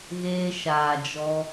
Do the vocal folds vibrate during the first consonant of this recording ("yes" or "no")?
yes